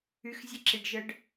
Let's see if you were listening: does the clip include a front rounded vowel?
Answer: yes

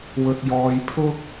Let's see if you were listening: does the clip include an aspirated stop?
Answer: yes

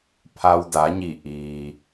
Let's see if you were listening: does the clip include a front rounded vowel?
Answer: no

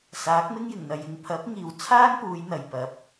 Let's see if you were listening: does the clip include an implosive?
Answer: no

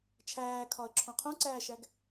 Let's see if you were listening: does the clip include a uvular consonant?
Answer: yes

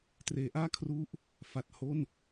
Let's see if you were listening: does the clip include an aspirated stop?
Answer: yes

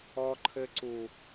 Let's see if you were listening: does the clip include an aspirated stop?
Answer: yes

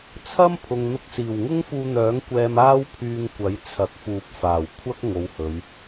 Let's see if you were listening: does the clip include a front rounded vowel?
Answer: yes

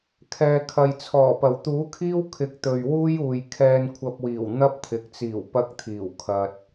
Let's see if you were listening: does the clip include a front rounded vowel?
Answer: no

